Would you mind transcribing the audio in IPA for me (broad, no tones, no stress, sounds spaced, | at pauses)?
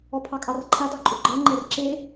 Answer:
ɔ pʰ ɑ kʼ ɑ r ǃʰ a d ɑ ǃʼ ʏ ɡ͡ǃ ɛ ŋ͡ǃ ɛ r ǁ e